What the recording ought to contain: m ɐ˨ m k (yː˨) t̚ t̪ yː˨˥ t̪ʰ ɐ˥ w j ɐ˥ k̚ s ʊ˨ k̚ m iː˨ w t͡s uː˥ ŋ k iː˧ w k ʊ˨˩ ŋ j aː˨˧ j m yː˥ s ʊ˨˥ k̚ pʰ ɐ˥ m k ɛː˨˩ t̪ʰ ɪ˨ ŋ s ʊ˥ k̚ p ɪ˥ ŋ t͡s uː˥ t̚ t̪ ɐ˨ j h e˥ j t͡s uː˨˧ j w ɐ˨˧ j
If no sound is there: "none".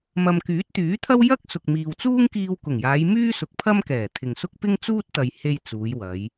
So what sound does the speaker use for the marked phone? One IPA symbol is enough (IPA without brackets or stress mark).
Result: yː˨˥